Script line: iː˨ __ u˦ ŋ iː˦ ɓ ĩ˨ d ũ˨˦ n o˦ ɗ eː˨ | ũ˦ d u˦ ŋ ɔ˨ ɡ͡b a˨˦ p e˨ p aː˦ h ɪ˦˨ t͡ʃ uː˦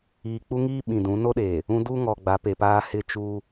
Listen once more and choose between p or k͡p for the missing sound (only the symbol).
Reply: k͡p